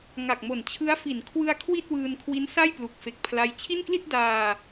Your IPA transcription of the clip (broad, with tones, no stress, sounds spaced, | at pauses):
ŋ a˨˩ k̚ m o˨˩ n t͡ɕʰ ɯ˦˥ a̯ f i˩˦ n kʰ w ɯ˧ a̯ kʰ w i˥˩ t̚ w ɯː˧ n kʰ w i˦˥ n s a˥˩ j p l u˨˩ k̚ f e˨˩ k̚ pʰ l a˦˥ j t͡ɕʰ i˥˩ n k l i˥˩ t̚ d aː˧